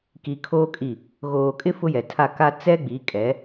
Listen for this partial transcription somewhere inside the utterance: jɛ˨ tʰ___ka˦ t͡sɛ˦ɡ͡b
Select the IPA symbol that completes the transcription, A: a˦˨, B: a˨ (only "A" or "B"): A